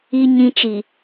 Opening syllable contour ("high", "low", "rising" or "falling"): low